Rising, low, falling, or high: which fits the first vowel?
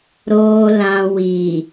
low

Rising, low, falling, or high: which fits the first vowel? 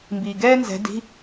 low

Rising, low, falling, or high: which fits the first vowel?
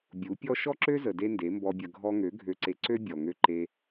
rising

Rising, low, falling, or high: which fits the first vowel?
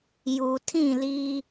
low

